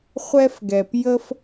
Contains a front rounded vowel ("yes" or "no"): no